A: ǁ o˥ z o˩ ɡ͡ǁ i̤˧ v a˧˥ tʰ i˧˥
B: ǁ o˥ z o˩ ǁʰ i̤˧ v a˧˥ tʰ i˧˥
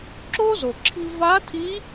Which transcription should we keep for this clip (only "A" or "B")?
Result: B